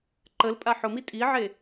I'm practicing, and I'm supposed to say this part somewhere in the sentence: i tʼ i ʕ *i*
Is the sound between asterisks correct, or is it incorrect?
incorrect